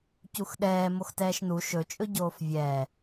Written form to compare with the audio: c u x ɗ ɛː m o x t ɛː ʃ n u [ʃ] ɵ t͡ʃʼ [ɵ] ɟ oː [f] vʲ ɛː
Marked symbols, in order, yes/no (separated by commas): yes, yes, yes